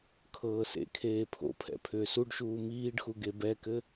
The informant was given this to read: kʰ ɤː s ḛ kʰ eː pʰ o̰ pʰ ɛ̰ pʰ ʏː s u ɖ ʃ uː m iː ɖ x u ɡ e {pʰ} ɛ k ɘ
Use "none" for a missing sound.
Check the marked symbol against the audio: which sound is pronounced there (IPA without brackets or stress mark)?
b